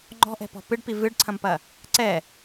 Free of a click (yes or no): no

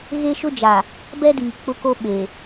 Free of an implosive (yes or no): no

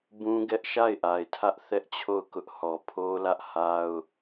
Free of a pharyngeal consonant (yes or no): yes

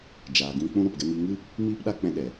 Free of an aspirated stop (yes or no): yes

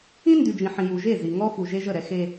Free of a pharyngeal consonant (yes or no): no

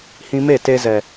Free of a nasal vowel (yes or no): no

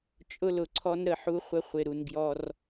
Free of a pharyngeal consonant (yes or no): no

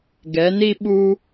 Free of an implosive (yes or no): no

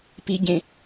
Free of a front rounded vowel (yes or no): yes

